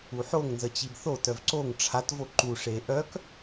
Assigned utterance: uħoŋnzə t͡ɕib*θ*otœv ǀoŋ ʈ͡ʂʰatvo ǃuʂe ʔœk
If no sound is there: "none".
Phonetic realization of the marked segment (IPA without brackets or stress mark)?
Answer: θ